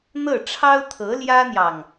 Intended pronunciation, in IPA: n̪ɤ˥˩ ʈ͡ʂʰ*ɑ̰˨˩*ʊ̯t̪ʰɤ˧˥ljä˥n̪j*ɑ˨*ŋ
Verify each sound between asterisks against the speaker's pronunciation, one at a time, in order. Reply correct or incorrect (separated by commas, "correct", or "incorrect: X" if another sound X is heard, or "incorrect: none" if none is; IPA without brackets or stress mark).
incorrect: ɑ˥, correct